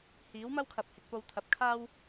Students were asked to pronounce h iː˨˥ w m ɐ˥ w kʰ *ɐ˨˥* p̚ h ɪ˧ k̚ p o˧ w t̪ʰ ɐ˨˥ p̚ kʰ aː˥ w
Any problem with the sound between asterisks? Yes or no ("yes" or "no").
yes